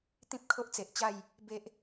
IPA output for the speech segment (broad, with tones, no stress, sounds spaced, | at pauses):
t̪ ĩ˦ p̚ kʰ o˦ ʔ t͡s e˨ ʔ t͡ɕ a˥˧ j | b e˦ ʔ